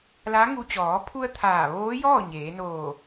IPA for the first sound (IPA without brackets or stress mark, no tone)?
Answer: l